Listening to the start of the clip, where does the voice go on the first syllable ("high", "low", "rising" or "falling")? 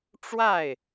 falling